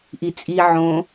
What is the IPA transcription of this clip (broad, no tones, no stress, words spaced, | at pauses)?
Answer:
ʔit͡sʼi ʕõ